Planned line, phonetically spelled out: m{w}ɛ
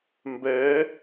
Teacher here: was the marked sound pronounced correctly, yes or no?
no